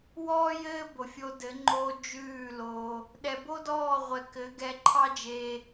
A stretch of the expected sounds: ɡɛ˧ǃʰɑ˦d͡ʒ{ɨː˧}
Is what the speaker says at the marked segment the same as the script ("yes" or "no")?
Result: no